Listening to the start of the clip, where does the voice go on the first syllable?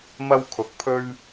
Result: high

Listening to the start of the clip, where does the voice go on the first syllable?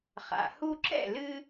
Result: low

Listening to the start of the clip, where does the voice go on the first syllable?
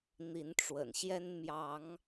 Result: rising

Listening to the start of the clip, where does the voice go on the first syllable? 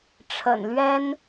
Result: low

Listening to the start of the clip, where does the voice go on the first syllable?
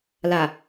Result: low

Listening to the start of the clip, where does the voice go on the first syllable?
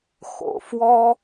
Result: low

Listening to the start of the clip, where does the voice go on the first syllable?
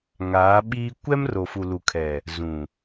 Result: rising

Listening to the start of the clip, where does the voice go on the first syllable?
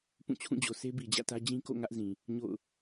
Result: falling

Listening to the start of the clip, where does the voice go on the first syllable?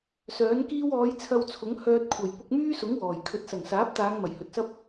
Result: rising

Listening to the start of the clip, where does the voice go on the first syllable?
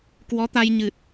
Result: rising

